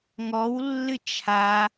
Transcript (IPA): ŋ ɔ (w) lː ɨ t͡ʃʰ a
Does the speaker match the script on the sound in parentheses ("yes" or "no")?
yes